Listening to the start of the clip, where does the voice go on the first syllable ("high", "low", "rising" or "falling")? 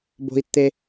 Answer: low